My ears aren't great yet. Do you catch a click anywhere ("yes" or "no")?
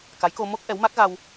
no